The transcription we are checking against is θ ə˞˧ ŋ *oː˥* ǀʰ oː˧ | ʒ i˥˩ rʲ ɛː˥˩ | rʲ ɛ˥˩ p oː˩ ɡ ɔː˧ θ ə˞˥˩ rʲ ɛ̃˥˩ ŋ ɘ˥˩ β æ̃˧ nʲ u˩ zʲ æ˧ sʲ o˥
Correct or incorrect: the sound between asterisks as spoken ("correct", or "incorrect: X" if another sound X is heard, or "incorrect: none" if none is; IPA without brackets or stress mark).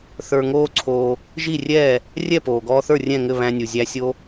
correct